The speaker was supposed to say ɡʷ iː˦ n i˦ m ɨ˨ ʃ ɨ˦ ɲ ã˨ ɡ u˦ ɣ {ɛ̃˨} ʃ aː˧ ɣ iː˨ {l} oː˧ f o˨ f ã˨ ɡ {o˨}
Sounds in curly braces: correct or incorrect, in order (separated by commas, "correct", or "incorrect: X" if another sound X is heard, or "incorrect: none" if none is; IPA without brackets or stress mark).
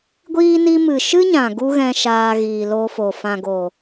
incorrect: ɛ̃˧, correct, correct